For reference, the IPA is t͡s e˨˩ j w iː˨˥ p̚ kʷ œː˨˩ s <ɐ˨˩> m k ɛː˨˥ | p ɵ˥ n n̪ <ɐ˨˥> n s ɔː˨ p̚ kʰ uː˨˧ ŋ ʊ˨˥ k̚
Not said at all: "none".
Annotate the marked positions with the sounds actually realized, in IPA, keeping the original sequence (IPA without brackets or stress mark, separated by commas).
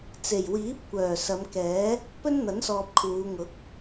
ɐ˨˧, ɐ˨˥